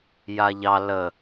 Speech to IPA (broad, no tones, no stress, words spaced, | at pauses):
jaʎɑ lə